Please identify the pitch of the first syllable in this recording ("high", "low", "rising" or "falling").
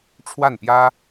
falling